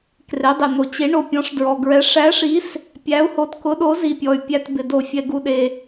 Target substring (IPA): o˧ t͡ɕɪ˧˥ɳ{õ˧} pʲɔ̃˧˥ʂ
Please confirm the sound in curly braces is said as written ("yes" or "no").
no